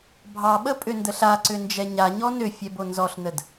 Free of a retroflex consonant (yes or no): yes